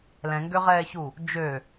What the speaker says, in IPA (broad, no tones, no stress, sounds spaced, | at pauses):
l ɛ̃ ŋ ɡ ø ʁ ɛː ç u | d͡ʒ ø